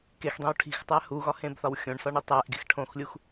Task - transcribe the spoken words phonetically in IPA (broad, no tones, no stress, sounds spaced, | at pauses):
k e x dˤ ẽ w ʈʰ i̤ x tˤ æ h u ɣ ɒ h ẽ b θ ɒ w xʲ õ ɳ s ɒ ɳ e tˤ æ ʔ ɡ e̤ x ʈʰ õ x lʲ u x